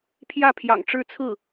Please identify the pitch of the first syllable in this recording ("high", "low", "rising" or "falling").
falling